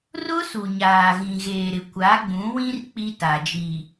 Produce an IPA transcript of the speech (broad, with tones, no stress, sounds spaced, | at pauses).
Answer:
r ʊ˦ s u˨ ɲ aː˨ ɣ ĩ˨ ɣ eː˨ ɾ ɪ˨ kʷ a˨˦ ɡ͡b ũ˨˦ w ĩ˦ r k͡p i˦ t a˨ d͡ʒ i˨